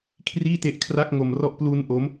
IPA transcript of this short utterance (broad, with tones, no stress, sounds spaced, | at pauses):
kʰ r iː˥˩ t e˦˥ ʔ kʰ r a˥˩ k̚ ŋ o˧ m r ɔ˥˩ ʔ p l u˦˥ n ʔ o˦˥ m